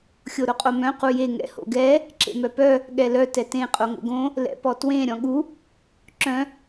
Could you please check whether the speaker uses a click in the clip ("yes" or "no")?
yes